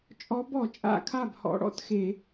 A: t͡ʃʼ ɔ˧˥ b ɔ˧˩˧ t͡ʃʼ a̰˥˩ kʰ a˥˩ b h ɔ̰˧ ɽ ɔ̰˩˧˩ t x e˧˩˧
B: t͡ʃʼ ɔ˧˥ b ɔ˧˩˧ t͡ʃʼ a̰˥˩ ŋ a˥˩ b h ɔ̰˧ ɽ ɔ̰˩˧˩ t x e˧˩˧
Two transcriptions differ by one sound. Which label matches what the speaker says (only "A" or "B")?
A